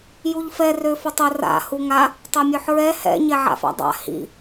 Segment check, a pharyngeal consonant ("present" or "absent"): present